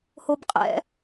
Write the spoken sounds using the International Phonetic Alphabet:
hobqʼɛ̰

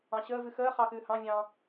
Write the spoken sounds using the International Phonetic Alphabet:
ɑ̃ɕəː vɨxəː χɑxɨːhɑ̃vʲɑ̃ː

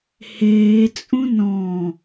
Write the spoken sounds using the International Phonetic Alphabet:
heːt͡sʼũ nɔ̃

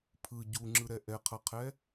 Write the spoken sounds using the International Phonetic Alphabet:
pʰɯ ɟuŋ͡ǁɯɾɛ ʔɛqʰʌqʰɛ

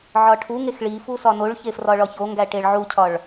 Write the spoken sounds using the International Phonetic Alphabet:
ʕɒʈʰuŋex ɭifu sɒnoɭçe frɒɭɒçoŋɡæ ʈeɭʕucʰɒɭ

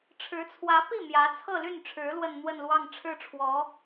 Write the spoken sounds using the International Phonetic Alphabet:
ʈ͡ʂʰɻ̩˧˥t͡sʰwä˧˥pi˥˩ mjä˧˥t͡sʰɤ˥˧ly˥˩nʈ͡ʂʰɻ̩˧˥ lwə˥˧nn̪wə˥˧nlwɑ˥˧ŋ ʈ͡ʂʰɻ̩˥˩ʈ͡ʂʰwɔ˧˥

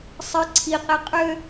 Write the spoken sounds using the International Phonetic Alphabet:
sˤɘ ǀʰiqe qʼø

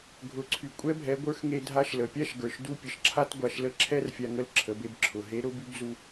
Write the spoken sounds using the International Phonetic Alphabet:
ɡʱʊ˩˧ǀʰy˩ kʷʼɛ˧˥bʱɛ˩˧ɡʷə˞˧˥x ŋe˧ dʱa˧˥ʃlə˩pʲa˥ʃɡə˞˩ʃ du˧˥pʲə˩ʃǁʰa˥t ɡʷa˧ʃ lə˥ ǁʰɛ˥rfʲa˧ ŋə˧˥lǁʰə˩˧be˧b ǁʰʊ˩ ɦe˧˥ɾʊ˧˥by˧˥bzu˧

